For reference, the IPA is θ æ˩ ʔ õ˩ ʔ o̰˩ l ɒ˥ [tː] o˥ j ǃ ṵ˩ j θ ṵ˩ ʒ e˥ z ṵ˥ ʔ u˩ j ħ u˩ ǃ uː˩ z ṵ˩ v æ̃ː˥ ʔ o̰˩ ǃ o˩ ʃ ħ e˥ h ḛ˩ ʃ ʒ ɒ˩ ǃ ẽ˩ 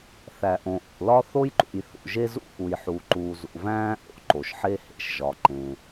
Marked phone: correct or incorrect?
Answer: incorrect